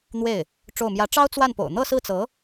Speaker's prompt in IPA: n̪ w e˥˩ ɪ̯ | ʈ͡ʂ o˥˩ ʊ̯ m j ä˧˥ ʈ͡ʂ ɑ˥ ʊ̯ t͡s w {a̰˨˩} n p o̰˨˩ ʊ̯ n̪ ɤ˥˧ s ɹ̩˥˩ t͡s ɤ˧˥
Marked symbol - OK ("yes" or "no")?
no